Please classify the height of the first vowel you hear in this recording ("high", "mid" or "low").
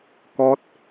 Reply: mid